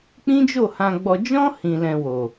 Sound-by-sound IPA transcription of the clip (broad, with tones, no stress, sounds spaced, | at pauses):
k͡p ĩ˦ d͡ʒ o˦˨ h ã˧ ɡ͡b ɔ˧ d͡ʒ ɔ̃˦ h ĩ˧ l ɛ̃˧ w o˨